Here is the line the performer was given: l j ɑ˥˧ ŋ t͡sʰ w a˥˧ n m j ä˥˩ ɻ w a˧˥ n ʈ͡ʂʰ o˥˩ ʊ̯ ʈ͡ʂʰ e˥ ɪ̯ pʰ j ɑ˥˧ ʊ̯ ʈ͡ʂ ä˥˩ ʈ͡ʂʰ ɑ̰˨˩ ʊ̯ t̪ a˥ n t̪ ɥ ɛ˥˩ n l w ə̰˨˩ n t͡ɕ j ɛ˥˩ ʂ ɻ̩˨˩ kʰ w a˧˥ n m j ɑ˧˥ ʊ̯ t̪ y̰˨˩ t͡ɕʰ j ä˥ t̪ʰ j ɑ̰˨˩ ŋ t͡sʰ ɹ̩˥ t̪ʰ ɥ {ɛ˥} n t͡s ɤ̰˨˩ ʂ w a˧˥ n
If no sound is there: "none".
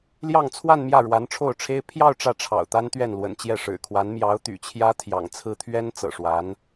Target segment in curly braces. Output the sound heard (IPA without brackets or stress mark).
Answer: ɛ˥